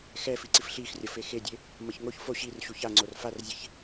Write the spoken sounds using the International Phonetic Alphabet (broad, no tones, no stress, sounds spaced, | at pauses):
x ɛ f i ǀ i f ɬ i x rʲ ʌ f e x e dʲ e | m ʌ ç ŋ o ç f o ɕ i r ɕ u ç a ŋ͡ǀ o r f a r zʲ e ç